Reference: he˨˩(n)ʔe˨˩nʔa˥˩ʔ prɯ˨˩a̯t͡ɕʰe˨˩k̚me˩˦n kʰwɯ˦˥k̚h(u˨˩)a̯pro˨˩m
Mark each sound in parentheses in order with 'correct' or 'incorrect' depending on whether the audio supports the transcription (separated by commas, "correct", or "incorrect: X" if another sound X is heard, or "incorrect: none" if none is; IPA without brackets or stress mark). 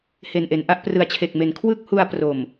correct, incorrect: u˧